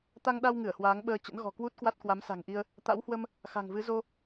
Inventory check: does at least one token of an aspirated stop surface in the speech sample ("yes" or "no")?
no